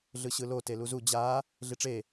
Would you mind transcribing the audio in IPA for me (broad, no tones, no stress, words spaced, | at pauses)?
ɮɯɕɯlo teluzu d͡ʑa | ɮiʈ͡ʂe